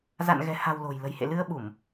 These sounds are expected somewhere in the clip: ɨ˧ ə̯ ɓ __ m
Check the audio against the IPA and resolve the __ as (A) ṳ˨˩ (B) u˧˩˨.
B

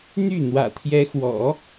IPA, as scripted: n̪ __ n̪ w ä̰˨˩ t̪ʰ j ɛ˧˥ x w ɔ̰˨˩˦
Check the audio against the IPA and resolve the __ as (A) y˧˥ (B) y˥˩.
B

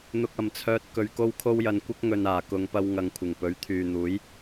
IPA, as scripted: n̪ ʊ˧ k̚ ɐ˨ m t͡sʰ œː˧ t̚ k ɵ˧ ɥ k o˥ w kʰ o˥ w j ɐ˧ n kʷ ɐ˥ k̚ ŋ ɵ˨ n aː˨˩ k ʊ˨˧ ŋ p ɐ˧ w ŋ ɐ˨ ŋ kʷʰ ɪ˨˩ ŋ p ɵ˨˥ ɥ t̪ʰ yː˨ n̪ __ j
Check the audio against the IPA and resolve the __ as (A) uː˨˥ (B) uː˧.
A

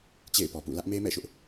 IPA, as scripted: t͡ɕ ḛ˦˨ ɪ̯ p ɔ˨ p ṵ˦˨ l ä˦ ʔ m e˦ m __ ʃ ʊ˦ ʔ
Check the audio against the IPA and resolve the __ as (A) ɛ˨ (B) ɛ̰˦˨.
B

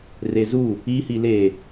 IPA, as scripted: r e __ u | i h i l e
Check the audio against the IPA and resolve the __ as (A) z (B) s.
A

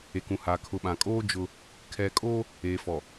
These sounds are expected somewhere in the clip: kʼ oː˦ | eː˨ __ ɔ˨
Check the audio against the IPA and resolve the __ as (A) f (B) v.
A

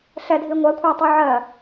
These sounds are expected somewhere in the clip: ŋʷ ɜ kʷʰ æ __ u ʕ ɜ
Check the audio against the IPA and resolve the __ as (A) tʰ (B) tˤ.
B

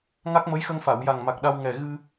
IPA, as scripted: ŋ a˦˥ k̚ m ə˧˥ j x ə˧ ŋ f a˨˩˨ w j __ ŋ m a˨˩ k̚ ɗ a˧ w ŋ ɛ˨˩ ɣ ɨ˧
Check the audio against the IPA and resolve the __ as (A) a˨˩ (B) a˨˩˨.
A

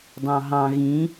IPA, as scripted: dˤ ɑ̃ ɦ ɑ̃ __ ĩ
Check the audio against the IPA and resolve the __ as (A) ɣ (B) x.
A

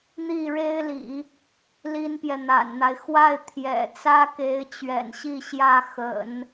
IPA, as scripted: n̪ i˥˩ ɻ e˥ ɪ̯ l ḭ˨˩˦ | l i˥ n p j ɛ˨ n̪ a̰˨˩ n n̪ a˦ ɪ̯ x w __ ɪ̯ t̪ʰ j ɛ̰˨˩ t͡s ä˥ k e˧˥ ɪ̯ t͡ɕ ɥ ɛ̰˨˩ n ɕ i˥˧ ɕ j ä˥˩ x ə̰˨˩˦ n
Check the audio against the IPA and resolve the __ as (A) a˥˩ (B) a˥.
A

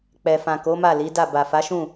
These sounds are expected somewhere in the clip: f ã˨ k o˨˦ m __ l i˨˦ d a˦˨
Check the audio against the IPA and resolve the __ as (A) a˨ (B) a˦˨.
B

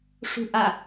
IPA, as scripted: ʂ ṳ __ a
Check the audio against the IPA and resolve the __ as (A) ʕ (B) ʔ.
B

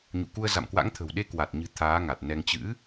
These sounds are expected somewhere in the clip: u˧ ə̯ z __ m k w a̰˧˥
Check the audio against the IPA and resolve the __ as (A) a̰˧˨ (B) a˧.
A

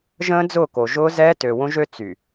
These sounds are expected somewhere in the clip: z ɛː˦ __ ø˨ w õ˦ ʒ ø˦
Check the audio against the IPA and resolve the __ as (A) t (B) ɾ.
A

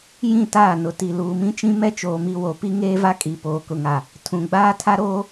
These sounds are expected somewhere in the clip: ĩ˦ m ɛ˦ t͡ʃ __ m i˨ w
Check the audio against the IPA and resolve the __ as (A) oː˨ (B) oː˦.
A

